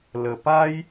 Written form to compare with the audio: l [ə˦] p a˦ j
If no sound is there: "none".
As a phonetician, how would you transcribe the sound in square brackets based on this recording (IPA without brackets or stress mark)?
ə˨˩